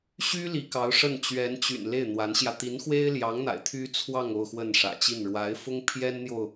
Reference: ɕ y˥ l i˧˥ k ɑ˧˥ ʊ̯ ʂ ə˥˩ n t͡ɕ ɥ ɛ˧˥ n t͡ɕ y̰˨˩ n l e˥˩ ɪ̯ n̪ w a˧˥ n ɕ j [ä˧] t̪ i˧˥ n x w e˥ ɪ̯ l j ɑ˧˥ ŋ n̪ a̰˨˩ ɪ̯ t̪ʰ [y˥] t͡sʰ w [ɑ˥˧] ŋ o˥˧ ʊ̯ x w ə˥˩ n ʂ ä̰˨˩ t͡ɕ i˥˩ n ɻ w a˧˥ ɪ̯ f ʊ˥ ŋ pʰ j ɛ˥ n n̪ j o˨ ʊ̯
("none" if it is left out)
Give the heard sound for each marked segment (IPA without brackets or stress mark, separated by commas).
ä˧, y˥, ɑ˥˧